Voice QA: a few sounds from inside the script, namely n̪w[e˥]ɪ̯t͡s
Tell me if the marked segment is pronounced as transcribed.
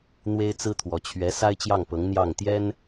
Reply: yes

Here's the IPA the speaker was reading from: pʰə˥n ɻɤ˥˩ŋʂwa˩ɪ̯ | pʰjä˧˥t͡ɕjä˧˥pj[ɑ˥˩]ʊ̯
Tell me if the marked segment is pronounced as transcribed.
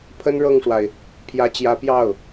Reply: yes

